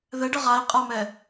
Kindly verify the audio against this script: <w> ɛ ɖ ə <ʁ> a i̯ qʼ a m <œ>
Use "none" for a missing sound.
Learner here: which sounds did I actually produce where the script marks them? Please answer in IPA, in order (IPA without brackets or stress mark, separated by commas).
ð, ʁ, ɛ